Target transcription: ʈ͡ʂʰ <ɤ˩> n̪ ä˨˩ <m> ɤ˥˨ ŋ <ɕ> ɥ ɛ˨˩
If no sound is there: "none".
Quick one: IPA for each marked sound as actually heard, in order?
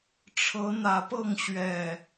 ɤ˨˦, p, ɕ

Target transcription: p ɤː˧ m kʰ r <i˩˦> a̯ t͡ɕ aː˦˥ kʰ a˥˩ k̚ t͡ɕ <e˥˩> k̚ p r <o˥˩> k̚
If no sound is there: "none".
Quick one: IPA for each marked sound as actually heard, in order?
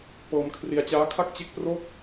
i˧, e˥˩, o˥˩

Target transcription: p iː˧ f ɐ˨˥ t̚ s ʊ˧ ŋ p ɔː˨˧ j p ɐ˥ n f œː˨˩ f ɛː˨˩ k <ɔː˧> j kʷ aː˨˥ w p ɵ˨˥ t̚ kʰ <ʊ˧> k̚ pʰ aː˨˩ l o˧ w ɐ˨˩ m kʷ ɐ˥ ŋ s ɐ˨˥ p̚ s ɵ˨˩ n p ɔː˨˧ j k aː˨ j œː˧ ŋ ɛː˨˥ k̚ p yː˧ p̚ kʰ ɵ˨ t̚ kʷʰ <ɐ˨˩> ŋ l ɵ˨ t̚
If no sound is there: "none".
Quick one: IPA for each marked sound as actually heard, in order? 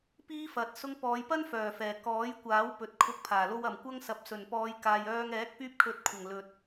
ɔː˨˥, ʊ˧, ɐ˨˩

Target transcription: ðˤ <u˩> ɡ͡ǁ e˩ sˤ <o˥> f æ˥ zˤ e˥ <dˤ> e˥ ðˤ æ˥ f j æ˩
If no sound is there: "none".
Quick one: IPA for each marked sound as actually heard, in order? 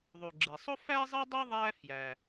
u˩, o˥, dˤ

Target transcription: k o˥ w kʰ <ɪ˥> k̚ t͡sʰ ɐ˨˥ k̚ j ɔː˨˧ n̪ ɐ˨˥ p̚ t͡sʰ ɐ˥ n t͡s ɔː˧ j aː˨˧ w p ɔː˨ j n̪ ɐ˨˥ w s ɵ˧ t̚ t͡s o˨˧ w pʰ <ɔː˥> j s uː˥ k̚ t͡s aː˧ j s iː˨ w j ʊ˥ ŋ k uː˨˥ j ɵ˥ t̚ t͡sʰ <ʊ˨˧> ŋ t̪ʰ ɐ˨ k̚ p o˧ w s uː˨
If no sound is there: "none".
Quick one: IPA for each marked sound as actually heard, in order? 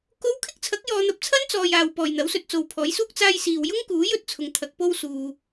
ɪ˥, ɔː˨˥, ʊ˨

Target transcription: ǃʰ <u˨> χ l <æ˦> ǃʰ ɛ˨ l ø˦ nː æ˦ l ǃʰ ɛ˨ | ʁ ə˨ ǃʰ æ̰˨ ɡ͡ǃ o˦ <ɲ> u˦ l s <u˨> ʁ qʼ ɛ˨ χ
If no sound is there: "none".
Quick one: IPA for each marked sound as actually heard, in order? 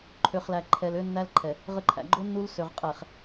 ø˨, æ˨, nː, ø˨

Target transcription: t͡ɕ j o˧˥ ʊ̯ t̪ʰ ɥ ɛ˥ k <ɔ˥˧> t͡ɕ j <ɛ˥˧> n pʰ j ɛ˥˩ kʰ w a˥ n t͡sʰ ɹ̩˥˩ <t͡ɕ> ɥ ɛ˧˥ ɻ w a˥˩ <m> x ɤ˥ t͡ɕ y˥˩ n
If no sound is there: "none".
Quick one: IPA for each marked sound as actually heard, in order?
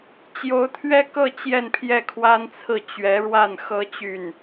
ɤ˥˧, ɛ˥˧, t͡ɕ, n

